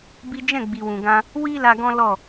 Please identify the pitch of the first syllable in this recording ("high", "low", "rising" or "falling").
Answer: high